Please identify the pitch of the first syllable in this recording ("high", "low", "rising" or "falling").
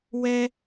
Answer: high